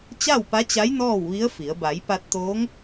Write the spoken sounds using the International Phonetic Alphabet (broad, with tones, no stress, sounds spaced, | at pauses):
t͡ɕ a˥˨ w p a˧˥ t͡ɕ a˧˥ j n ɔː˥˨ w ʋ i˧˥ ə̯ f i˩˧ ə̯ b a˩˧ j p a˧ t̚ t̪ oː˧˥ ŋ